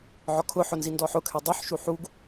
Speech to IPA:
ʕ ɔ kʰ ʊ ħ ʊ n z i n d ɔ ħ ʊ kʰ ɛ dˤ œ ħ ʃ u ħ u ɡ

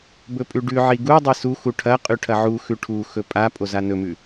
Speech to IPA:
b ɵ pʼ ʉ ɖ ʉ ʕ i ɡ u dˤ i s u x u ʈʰ ɐ qʼ ʉ ʈʰ ɐ ʕ u x ʉ ʈʰ u x ɵ pʼ a pʼ o z a n ɵ m ʉ

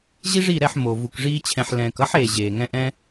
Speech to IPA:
ʑ i˦ ʐ i˦˨ ɾ ɛ˦˨ ħ m o˨ v u˨ k ʐ iː˦ t͡ɕʰ ɛ̃˧ ħ l ɛ̃ː˨ k ʌ˦ ħ eː˨ ʑ eː˨ ŋ ɛ̃˦ ʔ ɛ̃˦

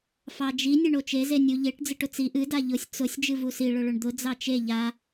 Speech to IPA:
f ɑ d͡ʒ i nʲ ɛ ɳ o t͡ʃ e z e nʲ u ʎ e ʈ d͡z ɨ ʈ ʊ t͡s i ʔ ɨ d a ʎ ʊ sʲ t͡s ʊ sʲ d͡ʒ ɨ v u s i ɭ ʊ ɭ ʊ ɳ d̪ ʊ d͡z ɑ t͡ʃ e ʎ a

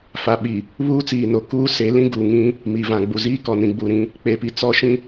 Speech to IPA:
f a˨ ɓ i˨ | β uː˦ t͡s iː˨ n o˨ k uː˦ s e˨˦ l ĩ˦ ɡ uː˨ ŋ ĩ˦ | m i˨ v ã˨ ɡ͡b u˨ z iː˦ k ɔ˨ n ĩ˨ ɡ͡b u˨ ɾ ĩ˦ | k͡p e˨ p i˨ t͡s ɔ˦ ʃ ĩ˦

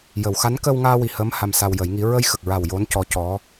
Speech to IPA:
j ə˨˩˨ w x a˧˥ n k əː˧ w ŋ aː˧ w i˨˩ h əː˧˥ m h a˧ m s a˧ w j ə˨˩˦ j ŋ i˧˥ ɹ ə˧ j x ə˨˩ k̚ ɹ a˨˩ w j o˧˥ n c ɔ˧˥ c ɔ˧˥

